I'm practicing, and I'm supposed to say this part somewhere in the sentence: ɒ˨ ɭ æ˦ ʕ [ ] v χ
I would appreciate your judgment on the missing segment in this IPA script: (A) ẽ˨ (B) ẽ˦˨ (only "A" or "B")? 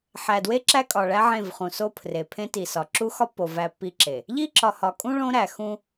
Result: B